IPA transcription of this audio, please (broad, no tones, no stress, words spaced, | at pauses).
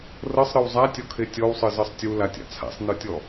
rɤsˤɾɯw zˤatʲɔkʰe tʲɔwsˤɯzɤsˤ tʲulatʲa̰ t͡sʰa̰sˤnɯtʲɔ